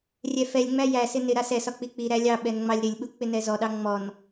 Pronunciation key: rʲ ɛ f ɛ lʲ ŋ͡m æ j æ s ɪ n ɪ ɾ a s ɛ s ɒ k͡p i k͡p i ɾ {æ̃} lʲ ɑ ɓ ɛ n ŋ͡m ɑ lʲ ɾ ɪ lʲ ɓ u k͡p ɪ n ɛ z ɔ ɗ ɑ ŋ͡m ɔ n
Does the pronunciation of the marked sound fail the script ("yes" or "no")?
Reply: yes